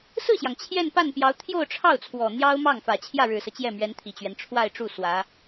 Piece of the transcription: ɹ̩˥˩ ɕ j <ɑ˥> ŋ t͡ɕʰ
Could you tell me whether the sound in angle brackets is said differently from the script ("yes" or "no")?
yes